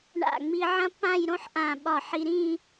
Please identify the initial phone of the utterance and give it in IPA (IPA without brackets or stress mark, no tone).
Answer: ɳ